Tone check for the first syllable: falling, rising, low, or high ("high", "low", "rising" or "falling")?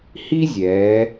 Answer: high